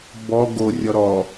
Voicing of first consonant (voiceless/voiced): voiced